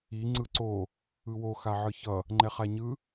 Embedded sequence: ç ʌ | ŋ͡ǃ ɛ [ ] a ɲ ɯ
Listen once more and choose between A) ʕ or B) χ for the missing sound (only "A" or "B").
B